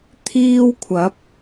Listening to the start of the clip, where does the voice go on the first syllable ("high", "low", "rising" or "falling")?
high